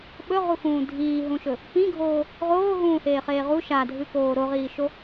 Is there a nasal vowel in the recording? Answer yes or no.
yes